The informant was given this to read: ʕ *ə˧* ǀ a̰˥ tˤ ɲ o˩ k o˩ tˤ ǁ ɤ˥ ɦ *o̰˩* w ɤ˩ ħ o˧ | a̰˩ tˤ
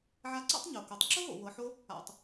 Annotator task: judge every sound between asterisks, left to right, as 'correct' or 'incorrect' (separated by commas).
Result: incorrect, correct